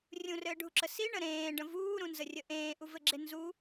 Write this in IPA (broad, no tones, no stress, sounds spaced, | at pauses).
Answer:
rʲ ũ r ɘː ɖʱ u ǁ ə s i ɳ ə ɾ ẽː ɖ ə̃ v uː ɾ ũ n z ə rʲ ə ʔ ẽː ʔ u v ɘ ɡ͡ǁ e n z u